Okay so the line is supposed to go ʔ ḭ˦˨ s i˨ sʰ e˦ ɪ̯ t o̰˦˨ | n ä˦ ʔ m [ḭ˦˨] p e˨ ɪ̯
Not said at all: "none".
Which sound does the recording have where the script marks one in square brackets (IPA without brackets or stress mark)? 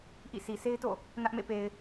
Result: ḛ˦˨